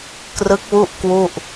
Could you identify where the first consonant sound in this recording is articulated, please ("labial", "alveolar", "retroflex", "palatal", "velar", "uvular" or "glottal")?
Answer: velar